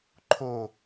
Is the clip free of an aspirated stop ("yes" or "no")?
no